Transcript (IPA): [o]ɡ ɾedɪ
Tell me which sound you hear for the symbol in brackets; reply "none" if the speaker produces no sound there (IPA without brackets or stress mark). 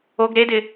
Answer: o